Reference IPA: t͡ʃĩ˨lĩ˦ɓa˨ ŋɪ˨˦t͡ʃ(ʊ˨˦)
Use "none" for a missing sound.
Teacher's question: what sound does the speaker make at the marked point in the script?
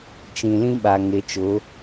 ʊ˨˦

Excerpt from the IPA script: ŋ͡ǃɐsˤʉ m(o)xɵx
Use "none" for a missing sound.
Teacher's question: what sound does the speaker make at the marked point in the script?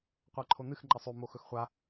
o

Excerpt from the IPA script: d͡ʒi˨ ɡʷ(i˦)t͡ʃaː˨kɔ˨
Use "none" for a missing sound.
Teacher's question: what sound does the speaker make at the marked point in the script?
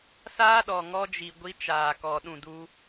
i˦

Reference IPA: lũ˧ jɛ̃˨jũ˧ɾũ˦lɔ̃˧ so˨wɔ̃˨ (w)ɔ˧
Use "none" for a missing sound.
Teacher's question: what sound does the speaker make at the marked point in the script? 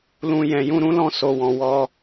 w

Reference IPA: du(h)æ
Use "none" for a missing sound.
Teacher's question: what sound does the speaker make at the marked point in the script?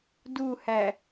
h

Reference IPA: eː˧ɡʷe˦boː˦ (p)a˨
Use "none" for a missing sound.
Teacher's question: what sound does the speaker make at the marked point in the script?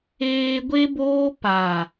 p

